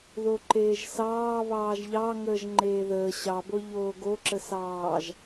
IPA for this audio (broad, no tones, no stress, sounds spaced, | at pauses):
ð o ǃ eː ʒ s ɑː β ɑː ʒ ʎ ɑ ŋ əː ʒ ŋ͡ǃ eː ð əː ɕ ɑ b o ʎ oː ɡ o ǁ ə s ɑː ʒ